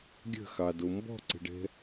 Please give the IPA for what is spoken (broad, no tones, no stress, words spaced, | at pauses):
ɡʲə̤xɑdo mbɔ̤ǀə̤ɖɛ̤